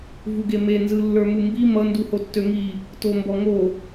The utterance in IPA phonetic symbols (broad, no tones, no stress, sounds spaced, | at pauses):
v u ɡ e m e n z ɯ lː ə˞ m u m b i m ʌ n d u h o tː ø ŋ i | t o m b ɔ ŋ o